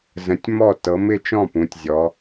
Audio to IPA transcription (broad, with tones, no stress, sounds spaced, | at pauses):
z ə̃˨˦ tʲ m ɔ˥˨ t ɤ˨˦ m ɪ˥˨ t͡ʃ ɔ̃˥˨ p ũ˨˦ tʲ zʲ ɔ˨˦